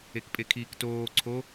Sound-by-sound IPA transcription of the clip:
ekpʼekʰiːktoː ǀʰo

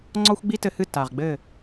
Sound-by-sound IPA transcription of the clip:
ŋ͡ǀɔ˥xʷɡ͡bi˥tɘ˧hɨ˥˩ ta˩ʁɡ͡bɘ˥˩

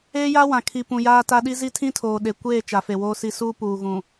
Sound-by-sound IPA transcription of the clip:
eː˦ja˦wã˨kʰi˨ pũ˨jaː˦ta˦ ɗi˦zi˦tʰĩ˦ tʰoː˨ɗe˨ kʷeː˦˨ t͡ʃa˨fe˨woː˦si˦ suː˦puː˨ɣũ˨

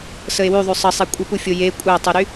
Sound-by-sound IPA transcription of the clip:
səe̯wyðˤy sˤəsˤe kʷʼəpufʲo je kʷʼætˤuɾy

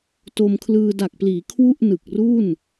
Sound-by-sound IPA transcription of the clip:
to˧mkʰlɯː˧ da˨˩k̚pliː˩˦ kʰwu˥˩ʔ nɯ˨˩k̚ru˥˩n

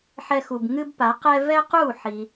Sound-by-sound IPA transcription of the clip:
ħɛ˧xu˩b ŋɨ˥bpa˩˥qɛ˥ vɛ˥qu˥˩ħi˩

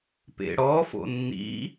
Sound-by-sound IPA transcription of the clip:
pḛɽɔ fo̰nːḭ

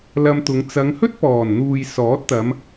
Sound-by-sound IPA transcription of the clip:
lɐ˧mt̪ʊ˨˧ŋ t͡sɐ˨˧ŋhɵ˥t̚pɔː˨˩nn̪uː˨j sɔː˨˥t̚t̪ɐ˨˧m

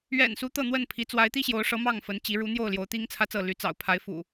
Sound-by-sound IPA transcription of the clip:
ɥɛ̰˨˩nsu˨˦ t̪ɤ˥˨n̪wə˥˨npʰi˨˦ t͡swa˨˦ɪ̯t̪i˦ɕjo˨˦ʊ̯ʂɤ˨˦ mɑ˥˨ŋfə˨˦nt͡ɕi˨˦ ɻu˨˦n̪jo˥˨ʊ̯ ljo˨˦ʊ̯t̪i˦ŋt͡sʰä˦t͡sɤ˥˨ ly˨˦ t͡sɑ̰˨˩ʊ̯pʰa˨˦ɪ̯fṵ˨˩

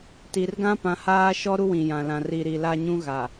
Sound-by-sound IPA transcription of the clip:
ti˨rɡã˦ pã˨haː˦ʃɔ˦ ɾu˦wĩ˨jã˨lã˨ ri˨ ɾi˨la˦ɲũ˦ɣa˨

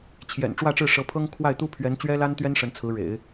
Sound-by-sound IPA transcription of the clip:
t͡ɕʰjɛ̰˨˩n ʈ͡ʂwä˥˧ʈ͡ʂɻ̩˥˩ʂɤ˧˥ pʰɤ˥ŋ kʰwa˥˩ɪ̯t̪u˥pʰɥɛ˧˥n t͡ɕɥɛ˥la˥nt̪ɥɛ˥n ʂə˧˥nt͡sʰɹ̩˧˥ɻḛ˨˩˦ɪ̯

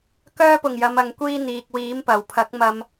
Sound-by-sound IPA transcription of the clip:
kœː˧pʊ˨˩ŋ jɐ˨˧mɐ˨˧ŋkʷiː˥n̪iː˨k̚ wiː˨˥mpɐ˨˩wpʰɐ˨˥k̚mɐ˧m

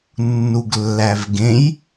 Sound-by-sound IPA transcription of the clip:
nːuɡlːævɡẽj

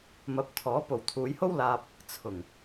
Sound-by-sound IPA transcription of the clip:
mɐ˨˥p̚t̪ʰɔː˨˥ po˨wt̪ʰuː˨˧jho˥w laː˧p̚ | t͡sʰʊ˨˩ŋ

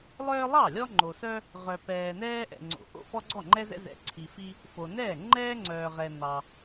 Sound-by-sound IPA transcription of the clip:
lˠœː˦lˠɑ˥˩ lʲɔ˦ŋ͡ǃo˨sœ˦ | ʁœ˨pɛː˨nɛː˦ ʔɛ̰˨ŋ͡ǀo̰˨ ʔo̰˥˩fɔ˦ɡ͡ǀɔ˥˩ŋ͡ǃɛ˦ zɛ̰˦zɛ̰˨ǀʰi˨fi˦ | fo˨nɛː˥˩ ŋ͡ǃɛː˦ŋ͡ǀœː˨ʁɛ˨ nɑ˨

